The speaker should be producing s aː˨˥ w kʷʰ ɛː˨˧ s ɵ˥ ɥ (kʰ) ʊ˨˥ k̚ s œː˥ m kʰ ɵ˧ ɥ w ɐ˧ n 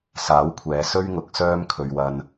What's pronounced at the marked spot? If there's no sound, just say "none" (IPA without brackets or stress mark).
ŋ